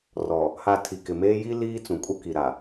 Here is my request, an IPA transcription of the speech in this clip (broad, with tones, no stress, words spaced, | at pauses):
rɔ˨ | ha˨ tʰi˨kɪ˨meː˦ ji˦ liː˦t͡sũ˨kʼu˦ ki˨ɾa˨